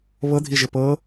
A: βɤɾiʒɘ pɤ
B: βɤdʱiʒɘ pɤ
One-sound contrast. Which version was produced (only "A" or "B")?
B